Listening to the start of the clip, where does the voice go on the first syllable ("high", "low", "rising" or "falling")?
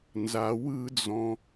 low